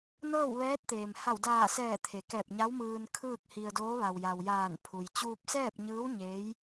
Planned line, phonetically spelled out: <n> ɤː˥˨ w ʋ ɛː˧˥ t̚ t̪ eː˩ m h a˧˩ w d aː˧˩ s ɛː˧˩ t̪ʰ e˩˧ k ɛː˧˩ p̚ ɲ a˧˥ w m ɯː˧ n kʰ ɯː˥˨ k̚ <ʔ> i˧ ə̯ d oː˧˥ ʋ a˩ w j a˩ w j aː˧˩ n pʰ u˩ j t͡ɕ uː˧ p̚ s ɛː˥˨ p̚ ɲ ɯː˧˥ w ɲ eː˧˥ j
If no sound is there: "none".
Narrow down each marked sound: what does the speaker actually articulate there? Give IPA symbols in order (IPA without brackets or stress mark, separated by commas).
n, h